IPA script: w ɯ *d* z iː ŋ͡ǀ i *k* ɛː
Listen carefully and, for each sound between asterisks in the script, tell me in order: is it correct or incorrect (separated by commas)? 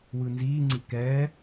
incorrect, correct